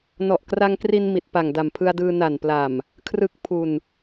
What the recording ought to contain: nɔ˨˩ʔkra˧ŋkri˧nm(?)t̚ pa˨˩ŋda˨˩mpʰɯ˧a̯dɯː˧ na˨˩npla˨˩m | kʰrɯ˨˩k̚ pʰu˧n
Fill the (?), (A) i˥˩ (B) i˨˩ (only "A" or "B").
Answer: B